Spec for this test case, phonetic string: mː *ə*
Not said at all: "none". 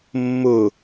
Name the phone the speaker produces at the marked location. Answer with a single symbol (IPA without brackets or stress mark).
ʊ